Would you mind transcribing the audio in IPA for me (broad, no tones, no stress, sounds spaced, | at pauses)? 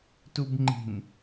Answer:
t u b ŋ͡ǃ i̤ n